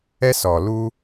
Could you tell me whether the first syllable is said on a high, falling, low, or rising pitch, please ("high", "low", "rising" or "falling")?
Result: high